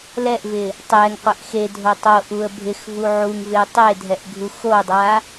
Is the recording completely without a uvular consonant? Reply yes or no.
no